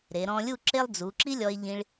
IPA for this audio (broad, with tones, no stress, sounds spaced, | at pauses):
ɾ e˩˧ ɾ ɔ̃˧ lʲ u˥˧ ǁ e˥ lˠ d͡z u˩˧ ǁ i˥ lʲ ɔ˧ e̯ ʎ ĩ˧ ɭ